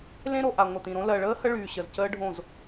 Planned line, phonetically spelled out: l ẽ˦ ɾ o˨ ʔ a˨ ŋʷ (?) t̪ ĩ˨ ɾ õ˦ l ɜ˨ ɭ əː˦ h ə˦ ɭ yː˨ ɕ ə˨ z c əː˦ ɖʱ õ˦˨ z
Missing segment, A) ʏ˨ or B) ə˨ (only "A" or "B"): B